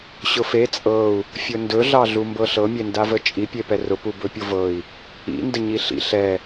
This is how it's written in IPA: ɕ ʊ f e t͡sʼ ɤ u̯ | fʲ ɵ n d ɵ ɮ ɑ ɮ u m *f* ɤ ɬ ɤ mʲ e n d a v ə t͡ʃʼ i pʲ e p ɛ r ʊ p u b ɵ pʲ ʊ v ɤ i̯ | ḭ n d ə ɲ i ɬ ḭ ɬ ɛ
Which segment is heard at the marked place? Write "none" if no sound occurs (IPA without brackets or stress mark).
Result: b